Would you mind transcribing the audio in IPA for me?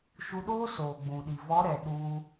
ʃ u˧ ɗ oː˦ s oː˨ ɡ͡b ũ˨ ɗ i˨ v ɔ˨˦ ɾ ɛ˨ ɗ u˧

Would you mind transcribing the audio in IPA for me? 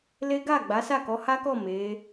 l e˦ ɡ a˦˨ ɡ͡b a˨˦ s a˦˨ k ɔ˨˦ h a˦ k ɔ˦˨ m e˨˦

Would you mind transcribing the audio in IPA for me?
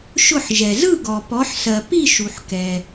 ʃ ʊ˥˧ ħ ʒ ɛ˨ z ɯ˥˧ ɡ ɔ˨ p ɔ˨˦ ħ s ɜ˨ p i˥˧ ʃ u˨ ħ k ɛ˨

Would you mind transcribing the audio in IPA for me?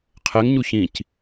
qʰ ɛ ŋ ɲ u ç ĩ c

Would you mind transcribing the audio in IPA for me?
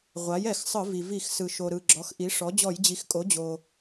ʁʷ a˩˥ j ɛ˧˩˧ x sˤ ɯ˧˩˧ v i˩ v i˧˩˧ x s ɯ˩ ʃ o˩ ɾ ɯ˩ ɡ͡ǁ ɔ˩˥ x ʔ i˩˥ ʂ ɔ˩˥ d͡ʑ ɔ˧˩˧ j d͡ʑ i˩˥ x kʼ o˩˥ d͡ʑ o˩

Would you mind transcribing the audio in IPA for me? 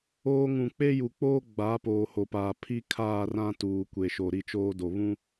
oː˦ ŋ ũ˨ k͡p e˦ j u˨ k͡p oː˦ ɡ͡b aː˨˦ p oː˨ h o˨ p aː˨ pʰ i˦ kʰ aː˦˨ r ã˦ t uː˨ kʷ e˨ ʃ o˨ ɾ i˦ t͡ʃ oː˦ d o˨ β ũ˦

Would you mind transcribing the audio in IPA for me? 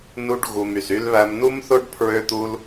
n u˧ ɖ ɣ u˨ m y˨ s y˧ l β æ˧ m n u˦ m θ o˦ ɖ pʰ ɹ ø˦ t̪ u˦ l

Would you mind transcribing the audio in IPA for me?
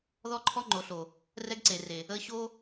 ð ɔ˦ ǃʰ ɔ˦ ŋ͡ǃ o˨ ɬ o˨ | r ɛ˦ ɡ ǀ e˨ r e˨ | ə˦ ɕ o˦

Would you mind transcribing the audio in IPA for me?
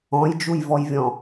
ɔ̃ j d͡ʒ u j v ɔ j vʲ ɔ̃

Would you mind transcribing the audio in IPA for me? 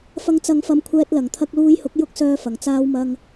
f ɐ˨˧ ŋ t͡s ɐ˨˧ ŋ f ɐ˧ m kʷʰ ɛː˧ t̚ l ɐ˨˩ ŋ t̪ʰ ɐ˧ k̚ l uː˧ j h ʊ˨˥ k̚ j ʊ˥ k̚ s œː˧ f ɐ˨˩ ŋ t͡s aː˧ w m ɐ˧ ŋ

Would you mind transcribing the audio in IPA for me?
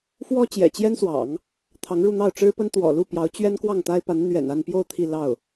f w ɔ˥ t͡ɕ j ɛ̰˨˩ t͡ɕ j ɛ˥ n s w ɑ̰˨˩˦ ŋ | t̪ʰ ɑ˧˥ ŋ ɻ u˥˧ n̪ ɑ˥˩ ʊ̯ ʈ͡ʂ ɻ̩˥ p ə˥ n t̪ w ɔ̰˨˩ l u˥˩ p j ɑ˧˥ ʊ̯ t͡ɕ ɥ ɛ˥ n k w ɑ˥˩ ŋ t̪ a˥ ɪ̯ p a˧˥ n n̪ ɥ ɛ̰˨˩ n a˥˧ n p j o˥˧ ʊ̯ t̪ʰ i˥˧ l ɑ˥˩ ʊ̯

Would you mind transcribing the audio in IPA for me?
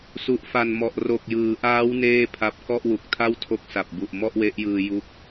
s u˨˩ ʔ f a˨˩ n m ɔ˨˩ ʔ r o˨˩ k̚ j ɯː˩˦ ʔ aː˦˥ w n eː˥˩ pʰ a˦˥ p̚ k ɔ˥˩ ʔ w u˨˩ k̚ tʰ a˥˩ w tʰ o˦˥ k̚ s a˨˩ p̚ b u˨˩ ʔ m ɔ˥˩ ʔ w e˦˥ ʔ j ɯː˧ j u˥˩ k̚

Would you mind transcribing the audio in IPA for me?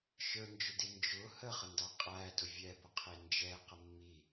ʃ ə˞ n d͡ʒ ʊ d i n d͡ʒ ʊ h ə χ ə n d ɑ qʼ æ d ʊ vʲ ɛ b ʊ qʰ i n d͡ʒ ɛ q ə mː i

